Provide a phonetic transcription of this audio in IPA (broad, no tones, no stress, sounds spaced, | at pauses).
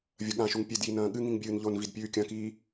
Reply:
vʲ ɐ ɠ ã ʃ u ŋ pʲ e d j i n ɐ̃ː ɠ ɨ ŋ ĩ ŋ bʲ ɨː n ʎ o n v i d pʲ ʉː kʲ ɐ̃ k iː